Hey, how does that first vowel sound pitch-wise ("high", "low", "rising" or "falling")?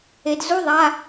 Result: low